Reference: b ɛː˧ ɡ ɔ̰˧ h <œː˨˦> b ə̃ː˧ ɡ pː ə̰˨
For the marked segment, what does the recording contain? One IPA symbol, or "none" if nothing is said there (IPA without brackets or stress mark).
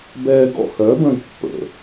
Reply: œː˨˦